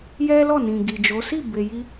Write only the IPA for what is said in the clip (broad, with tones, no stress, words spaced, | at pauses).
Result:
jɛ˦lɔ˦˨nĩ˨ ɡi˨d͡ʒo˨˦ si˦˨be˨ji˧